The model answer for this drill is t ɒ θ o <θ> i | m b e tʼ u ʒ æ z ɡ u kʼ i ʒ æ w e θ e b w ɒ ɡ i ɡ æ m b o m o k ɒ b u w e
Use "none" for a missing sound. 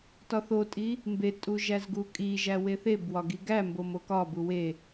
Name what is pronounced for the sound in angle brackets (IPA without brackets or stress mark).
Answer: tʼ